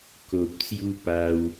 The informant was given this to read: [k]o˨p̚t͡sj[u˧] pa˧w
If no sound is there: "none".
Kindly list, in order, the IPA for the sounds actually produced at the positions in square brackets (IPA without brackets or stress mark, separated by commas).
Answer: k, u˧